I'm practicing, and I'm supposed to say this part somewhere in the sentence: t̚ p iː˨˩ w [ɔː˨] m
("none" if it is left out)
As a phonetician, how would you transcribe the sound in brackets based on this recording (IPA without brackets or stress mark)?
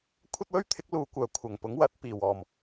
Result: ɔː˨˩